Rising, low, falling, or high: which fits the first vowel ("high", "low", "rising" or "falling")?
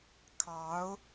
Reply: rising